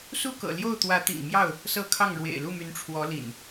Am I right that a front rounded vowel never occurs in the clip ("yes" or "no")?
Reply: no